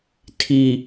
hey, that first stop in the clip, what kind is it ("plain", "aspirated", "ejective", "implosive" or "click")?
aspirated